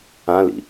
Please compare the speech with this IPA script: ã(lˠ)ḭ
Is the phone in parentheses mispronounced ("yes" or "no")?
yes